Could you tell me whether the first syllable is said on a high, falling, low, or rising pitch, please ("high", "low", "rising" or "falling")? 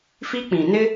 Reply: high